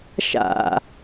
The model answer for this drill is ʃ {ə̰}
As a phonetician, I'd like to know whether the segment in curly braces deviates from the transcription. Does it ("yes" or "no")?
yes